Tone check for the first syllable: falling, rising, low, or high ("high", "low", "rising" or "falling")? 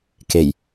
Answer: low